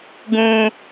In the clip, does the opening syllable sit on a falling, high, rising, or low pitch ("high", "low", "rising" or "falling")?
high